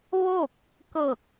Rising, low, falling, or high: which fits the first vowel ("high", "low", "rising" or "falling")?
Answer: falling